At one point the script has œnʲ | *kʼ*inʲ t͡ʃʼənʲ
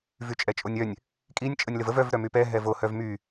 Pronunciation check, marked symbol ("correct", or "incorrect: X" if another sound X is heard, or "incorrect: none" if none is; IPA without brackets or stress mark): correct